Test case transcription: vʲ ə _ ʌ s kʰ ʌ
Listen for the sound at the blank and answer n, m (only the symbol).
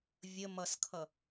m